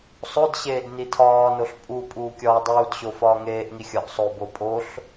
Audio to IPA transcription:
sˤodɕeːd nitʰɒːnoɬ pʼu pʼuːkʲɒːdˤuːdɕo fɒːŋeːʔŋi xʲɒʔsˤobo pʼoɬ

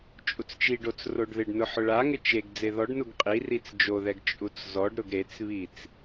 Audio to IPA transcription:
t͡ʃʼut͡st͡ʃiɖot͡s roɖðɪɖnʊ ħʊɭaŋɪ t͡ʃeɡ d͡zeðɔɖnuɡ qʼi rit͡sd͡ʒoðɛɡ t͡ʃʼut͡szɔɖɾʊɡ ɾet͡sβit͡s

